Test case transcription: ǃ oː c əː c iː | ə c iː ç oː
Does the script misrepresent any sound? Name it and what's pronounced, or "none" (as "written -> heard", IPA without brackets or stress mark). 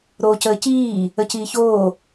ǃ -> ɾ